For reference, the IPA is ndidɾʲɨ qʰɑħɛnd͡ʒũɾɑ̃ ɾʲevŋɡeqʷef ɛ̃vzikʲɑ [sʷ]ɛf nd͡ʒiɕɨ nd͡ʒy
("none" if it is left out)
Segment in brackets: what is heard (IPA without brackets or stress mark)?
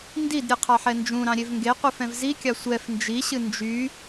sʷ